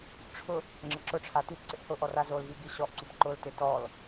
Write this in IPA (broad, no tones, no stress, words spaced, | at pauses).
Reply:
ʈ͡ʂʰʊ | ŋ͡ǁɪǁʊʈ͡ʂʰa titǀɪʔ hʊʔɔ razolvi ɡiɕɔʔǀup ǃʊltɪ tɔl